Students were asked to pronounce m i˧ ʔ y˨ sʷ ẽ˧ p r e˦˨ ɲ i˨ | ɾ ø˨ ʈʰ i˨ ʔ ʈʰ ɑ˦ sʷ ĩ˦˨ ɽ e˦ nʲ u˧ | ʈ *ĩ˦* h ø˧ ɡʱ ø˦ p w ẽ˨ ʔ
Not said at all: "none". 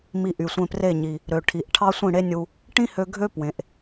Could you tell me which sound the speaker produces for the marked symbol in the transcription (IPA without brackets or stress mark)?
ĩ˦